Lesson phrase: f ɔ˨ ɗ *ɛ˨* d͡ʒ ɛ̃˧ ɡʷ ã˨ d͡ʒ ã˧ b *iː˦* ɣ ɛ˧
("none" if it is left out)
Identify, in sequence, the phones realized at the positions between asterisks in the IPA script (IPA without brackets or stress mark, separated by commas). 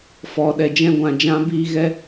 ɛ˨, iː˧